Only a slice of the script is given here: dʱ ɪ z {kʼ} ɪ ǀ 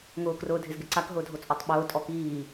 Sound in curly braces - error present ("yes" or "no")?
yes